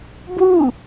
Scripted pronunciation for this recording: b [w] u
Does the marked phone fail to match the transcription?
no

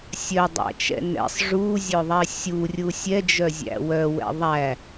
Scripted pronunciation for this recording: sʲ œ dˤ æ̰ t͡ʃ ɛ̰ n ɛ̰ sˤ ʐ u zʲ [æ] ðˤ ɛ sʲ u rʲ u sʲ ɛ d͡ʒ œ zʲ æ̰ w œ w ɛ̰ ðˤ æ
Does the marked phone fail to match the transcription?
yes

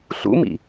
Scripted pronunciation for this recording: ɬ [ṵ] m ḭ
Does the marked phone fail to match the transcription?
no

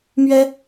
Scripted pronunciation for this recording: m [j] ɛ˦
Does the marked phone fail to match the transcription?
yes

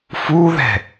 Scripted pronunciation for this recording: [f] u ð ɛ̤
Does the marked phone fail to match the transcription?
no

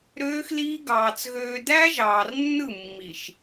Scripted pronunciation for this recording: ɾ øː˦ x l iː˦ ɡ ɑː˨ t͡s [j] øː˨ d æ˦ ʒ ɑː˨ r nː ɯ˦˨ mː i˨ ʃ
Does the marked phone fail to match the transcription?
yes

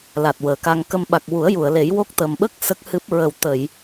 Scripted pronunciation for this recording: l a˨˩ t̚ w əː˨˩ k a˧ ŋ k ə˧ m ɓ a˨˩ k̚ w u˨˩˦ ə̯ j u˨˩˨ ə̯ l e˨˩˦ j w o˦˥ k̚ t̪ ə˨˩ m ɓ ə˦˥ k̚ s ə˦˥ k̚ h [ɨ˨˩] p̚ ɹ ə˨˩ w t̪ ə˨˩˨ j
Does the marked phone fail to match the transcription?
yes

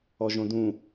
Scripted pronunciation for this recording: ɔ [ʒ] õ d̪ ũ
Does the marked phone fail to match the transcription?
no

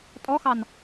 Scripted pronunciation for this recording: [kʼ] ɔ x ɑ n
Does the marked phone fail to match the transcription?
yes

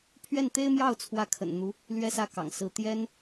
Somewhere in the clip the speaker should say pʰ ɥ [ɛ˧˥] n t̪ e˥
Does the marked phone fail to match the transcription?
yes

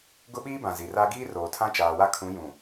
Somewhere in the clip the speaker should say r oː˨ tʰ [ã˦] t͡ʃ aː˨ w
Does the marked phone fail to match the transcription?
no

